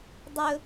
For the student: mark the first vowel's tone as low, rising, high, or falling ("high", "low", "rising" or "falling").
high